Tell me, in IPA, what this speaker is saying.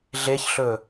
ɮ e ç ɬ ɵ

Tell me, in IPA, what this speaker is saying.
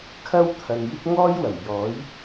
kʰ ɐ˥ w t̪ʰ ɐ˨ n j ɪ˥ k̚ ŋ ɔː˥ j w ɐ˨˩ m j ɔː˨˥ j

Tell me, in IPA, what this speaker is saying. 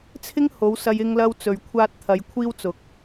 t͡sʰ ɪ˥ ŋ h o˨˧ w s ɐ˧ j ɪ˧ ŋ l ɐ˧ w t͡s ɵ˨ ɥ kʷʰ aː˧ t̚ t̪ʰ ɐ˨˧ j kʷʰ iː˥ w t͡s ʊ˨˥ k̚

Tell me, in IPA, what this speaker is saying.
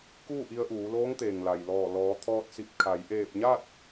k uː˥˨ ʔ i˧ ə̯ ʔ uː˩˧ l oː˧˥ ŋ t̪ eː˩ ŋ l a˩ j l ɔː˧˩ l ɔː˩˧ t̪ʰ ɔː˧ t̚ s i˧˩ p̚ kʰ a˩˧ j ʔ eː˧˩ p̚ ɲ a˥˨ t̚

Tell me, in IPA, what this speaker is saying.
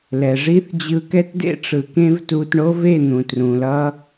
l ɛ˨ ʐ i˦ θ d͡ʑ ɯ˧ k ɛ˦ t d ḛ˦ ʈ͡ʂ ɯ˨ k ẽ˦ v t u˧ t ɳ o˦ v e˦˨ n̪ ũ˨ t r ũ˨ l ʌ˦

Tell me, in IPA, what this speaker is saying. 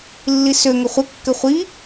lː i s ø ŋ ə χʷ ə kː ɘ χʷ i

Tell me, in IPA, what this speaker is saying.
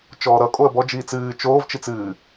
t͡ʃ ɔː ɾ ʌ kʼ o ə̯ b ɔ d͡ʒ iː t͡s ɨː t͡ʃ oː v t͡ʃ i t͡s ɨː

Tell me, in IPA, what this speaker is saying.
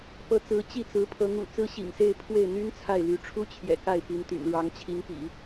p ɤ˧˥ t͡s ɹ̩˧˥ t͡ɕ i˥˩ t͡s ɹ̩˧˥ pʰ ɤ˧˥ ŋ ṵ˨˩ t͡s ɹ̩˥ ɕ ḭ˨˩ ŋ s e˥˧ ɪ̯ pʰ w e˥˩ ɪ̯ n̪ y˥ n t͡sʰ a˥˩ ɪ̯ l y˧˥ ʈ͡ʂʰ u˥ t͡ɕʰ j ɛ̰˨˩ k a˥˩ ɪ̯ p y˧˥ n t̪ y̰˨˩ n ɻ ɑ˧˥ ŋ t͡ɕʰ i˧˥ ŋ p ḭ˨˩˦

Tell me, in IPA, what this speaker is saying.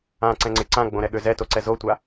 ã ǀ ɛ̃ ŋ͡ǀ ɪ ǀ ã ɡ͡b õ ɾ ɛ ɠ ø z ɛ t o ǀ ɛ z o tʷ a

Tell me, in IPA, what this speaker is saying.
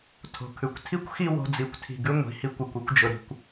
tʰ o̤˨ kʰ ʉ˨ kʷ tʰ i˦ kʷ x i˦ w o̤˧ d͡z i˨ kʷ tʰ i̤˨ ɡ ʉ˦ ŋʷ i̤˨˦ h i˧ kʷ ʉ˨ kʷ i˧ kʷ d͡ʒ ʊ˨ ɾ i̤˨ kʷ

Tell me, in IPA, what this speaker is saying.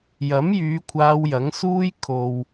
j ɐ˨˥ m j yː˨˧ kʷʰ aː˧ w j ɐ˨˥ ŋ s uː˥ j kʰ o˨ w

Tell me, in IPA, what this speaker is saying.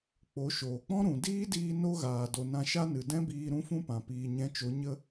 k͡p o˨˦ ʃ oː˨ k͡p ɔ̃˦ ɾ ũ˨ d iː˦ d iː˧ n o˦ ɣ aː˨ d o˨ n ã˧ ʃ a˦ n ɨ˨ d ɛ̃˦ b iː˧ ɾ ũ˦ f ũ˦ p ã˨ p iː˨ ɲ ɛ̃˨˦ t͡ʃ o˨˦ ɲ ə˦

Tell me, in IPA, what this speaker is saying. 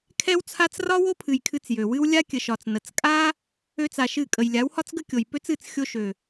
kʰ ɛ˦ w t͡sʰ a˦ t͡s r ɒ˦ w o˦ pʰ ɨ˨ j kʰ ɨ˧ t͡s j ø˨ w ɨ˦ w lʲ a˦ kʲ ə˨ ʃ ɒ˨ t͡s n ə˨ t͡s kʼ a˦ | ø˦ t͡s a˧ ʃ ɨ˦˨ kʼ ə˨ j lʲ a˨˦ w h ɒ˦ t͡s ɡ ə˦ kʲ o˨ j p ø˦ t͡s ɨ˦˨ t͡s xʲ o˧ ʃ ø˨

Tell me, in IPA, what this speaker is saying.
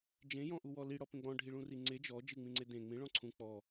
d͡ʒ ẽ j ɔ̃ ʔ u w ɔ l i ɽ ɔ p ẽ ɡ͡b ɔ̃ ɖʱ i ɭ ũ r i ŋ͡ǀ e d͡ʒ ɔ d͡ʒ ɨ ŋ͡m ĩ ŋ͡ǀ e d ẽ ŋ͡m ĩ ɭ ɔ̃ ǀʰ ũ k͡p ɔ

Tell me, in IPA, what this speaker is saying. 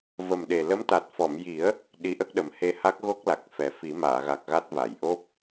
v ə˨˩ m ɗ e˨˩ l ə˧˥ m t̪ a˨˩ t̚ f ɔ˨˩˨ m j i˨˩˦ ə̯ | ɗ i˧˥ ʔ ə˦˥ k̚ ɗ ə˨˩˦ m h e˧ h a˦˥ k̚ ɣ o˦˥ k̚ l a˨˩ k̚ f ɛ˨˩ f i˨˩˦ m aː˨˩˨ ɣ a˨˩ k̚ ɣ a˦˥ t̚ v a˨˩˨ j ʔ o˦˥ p̚

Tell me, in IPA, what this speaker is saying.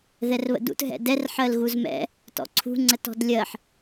ð ɛ r β ə̰ d ṵ t ɦ ɛ̰ d ɛ r ħ ɜ l ɣ u z m ɛ̰ | t ɔ̰ ǀʰ ṳ ŋ͡ǀ ə t ɔ̤ d lʲ ɜ ħ

